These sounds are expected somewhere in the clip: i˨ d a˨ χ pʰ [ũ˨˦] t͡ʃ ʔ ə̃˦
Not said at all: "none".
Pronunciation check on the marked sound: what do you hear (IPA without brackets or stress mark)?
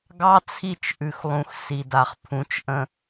ũ˨˦